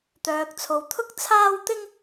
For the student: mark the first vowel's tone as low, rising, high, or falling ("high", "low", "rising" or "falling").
low